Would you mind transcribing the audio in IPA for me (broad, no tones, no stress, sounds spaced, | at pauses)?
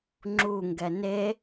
ŋ͡ǁ u ŋ ɡ ɛ n e